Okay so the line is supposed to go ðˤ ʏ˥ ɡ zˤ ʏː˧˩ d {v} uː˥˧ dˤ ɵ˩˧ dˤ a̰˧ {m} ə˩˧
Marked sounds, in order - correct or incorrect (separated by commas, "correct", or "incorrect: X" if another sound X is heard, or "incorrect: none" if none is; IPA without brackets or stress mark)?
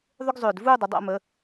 correct, correct